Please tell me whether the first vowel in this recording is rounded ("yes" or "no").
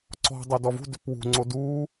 yes